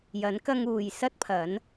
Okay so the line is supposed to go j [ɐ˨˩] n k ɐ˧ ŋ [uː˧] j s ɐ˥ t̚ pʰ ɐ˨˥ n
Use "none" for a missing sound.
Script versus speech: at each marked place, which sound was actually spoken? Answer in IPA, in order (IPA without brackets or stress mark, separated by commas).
ɐ˨˥, uː˨